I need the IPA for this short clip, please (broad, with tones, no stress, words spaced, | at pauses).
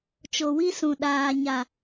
t͡ʃo˨wi˦sũ˨ ɗaː˨ɲa˨